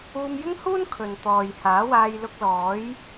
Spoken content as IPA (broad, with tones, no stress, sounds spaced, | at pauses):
uː˧ m j ɪ˥ ŋ h uː˥ n kʰ ɵ˨ n t̪ ɔː˨ j h aː˨˥ w aː˧ j l ʊ˧ k̚ l ɔː˨˥ j